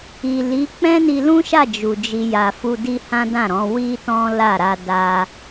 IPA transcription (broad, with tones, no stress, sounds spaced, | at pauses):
i˨ l i˨˦ k͡p ɛ̃˦ n i˧ l ũ˦ ʃ a˦˨ d͡ʒ u˨ d͡ʒ i˧ j a˨ f u˧ d i˦ h ã˦ d ã˦˨ ɾ ɔ̃˨˦ w i˦ t ɔ̃˦ l a˦˨ ɾ a˧ d a˧